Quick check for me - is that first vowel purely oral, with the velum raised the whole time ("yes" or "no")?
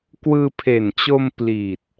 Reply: yes